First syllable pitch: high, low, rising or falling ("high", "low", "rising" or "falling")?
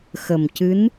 low